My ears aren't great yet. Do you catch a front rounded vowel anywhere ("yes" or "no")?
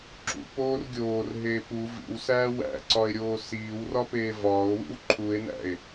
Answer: no